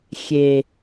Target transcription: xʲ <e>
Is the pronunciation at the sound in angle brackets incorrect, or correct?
correct